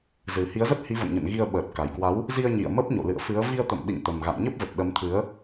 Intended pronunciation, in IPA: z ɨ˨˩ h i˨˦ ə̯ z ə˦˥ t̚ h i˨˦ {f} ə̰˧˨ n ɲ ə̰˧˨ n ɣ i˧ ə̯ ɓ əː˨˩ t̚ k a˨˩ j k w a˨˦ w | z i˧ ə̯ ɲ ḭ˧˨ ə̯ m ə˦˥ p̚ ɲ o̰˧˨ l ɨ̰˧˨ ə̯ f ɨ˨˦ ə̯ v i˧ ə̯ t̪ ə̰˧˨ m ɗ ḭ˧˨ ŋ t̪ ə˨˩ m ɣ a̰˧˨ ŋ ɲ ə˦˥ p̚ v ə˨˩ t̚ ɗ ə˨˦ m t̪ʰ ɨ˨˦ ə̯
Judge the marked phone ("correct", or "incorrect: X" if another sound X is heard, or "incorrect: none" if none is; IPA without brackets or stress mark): incorrect: v